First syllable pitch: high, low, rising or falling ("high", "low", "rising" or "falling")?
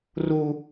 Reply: high